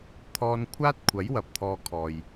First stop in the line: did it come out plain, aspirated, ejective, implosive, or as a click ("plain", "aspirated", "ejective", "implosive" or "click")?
aspirated